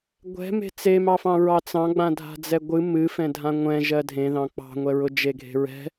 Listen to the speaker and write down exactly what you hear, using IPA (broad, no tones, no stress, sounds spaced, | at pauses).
ɡʷ ɛ̤ m e̤ t͡s e m ɑ f ɑ̃ ɹ ɑ t͡s ɑ̃ ɡ͡b ã dʱ a̤ d͡z ɛ ɡʷ ɨ m ɨ f ɛ̃ dʱ ã ŋʷ ɛ̃ ʒ ɜ dʱ ẽ ð ɑ̃ k͡p ɑ̤ ŋʷ ɛ ɹ ʊ d͡ʒ e ɡʱ e̤ ɹ ɛ̤